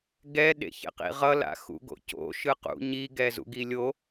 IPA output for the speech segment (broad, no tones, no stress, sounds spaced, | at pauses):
ɡ ɛ ɗ ḛ ç ḛ q ḭ ʁ ʌ l a̰ x ṵ ɡ o̰ c o̰ ʃ ɯ q ṵ ɲ i ɡ ɛ z ṵ ɡ i lʲ o